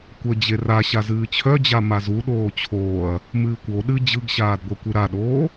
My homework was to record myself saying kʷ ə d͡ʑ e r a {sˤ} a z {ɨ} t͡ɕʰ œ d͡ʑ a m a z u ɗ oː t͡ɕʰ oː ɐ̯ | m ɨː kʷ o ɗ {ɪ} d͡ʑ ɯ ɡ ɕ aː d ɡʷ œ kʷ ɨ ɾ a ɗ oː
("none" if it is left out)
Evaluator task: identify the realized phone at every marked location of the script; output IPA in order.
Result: ɕ, ɨː, ɨ

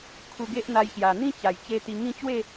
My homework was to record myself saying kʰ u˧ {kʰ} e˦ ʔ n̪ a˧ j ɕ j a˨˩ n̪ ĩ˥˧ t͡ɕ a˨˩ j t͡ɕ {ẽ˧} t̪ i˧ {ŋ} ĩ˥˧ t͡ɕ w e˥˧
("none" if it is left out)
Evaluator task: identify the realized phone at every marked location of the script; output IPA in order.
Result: ɡ, e˧, ŋ

